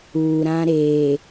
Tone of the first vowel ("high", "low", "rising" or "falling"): low